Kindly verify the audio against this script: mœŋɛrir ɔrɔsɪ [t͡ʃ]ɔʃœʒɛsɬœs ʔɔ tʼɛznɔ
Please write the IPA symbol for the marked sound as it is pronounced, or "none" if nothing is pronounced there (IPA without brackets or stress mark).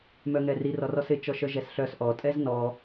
t͡ʃ